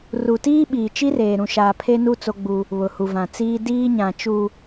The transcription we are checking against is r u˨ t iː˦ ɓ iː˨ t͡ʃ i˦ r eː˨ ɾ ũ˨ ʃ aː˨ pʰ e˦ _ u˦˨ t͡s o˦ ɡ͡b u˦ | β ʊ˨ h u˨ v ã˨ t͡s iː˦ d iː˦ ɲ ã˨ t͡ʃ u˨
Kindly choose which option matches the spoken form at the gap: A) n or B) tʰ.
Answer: A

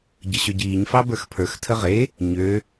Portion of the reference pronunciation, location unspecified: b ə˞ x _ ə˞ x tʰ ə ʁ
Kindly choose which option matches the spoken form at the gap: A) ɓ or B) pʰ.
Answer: B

